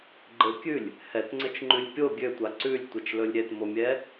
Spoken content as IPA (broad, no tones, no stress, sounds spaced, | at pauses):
ɡ͡ǃ ɘ kʲ ʉ lʲ | h ɛ t ŋ͡ǀ ɘ t͡ʃ ŋ͡ǃ ʉ lʲ pʲ o ɡʲ ø tʷ a ǀ ʉ lʲ tʷ e t͡ʃ l ɵ lʲ ɾʲ ɛ t m o mʲ ɛ